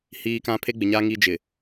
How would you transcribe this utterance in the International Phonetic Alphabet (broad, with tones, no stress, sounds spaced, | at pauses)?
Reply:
h iː˦ k ã˦ pʰ e˦ ɡ͡b ɪ˨ ɲ aː˦ ŋ i˦ d͡ʒ ɪ˨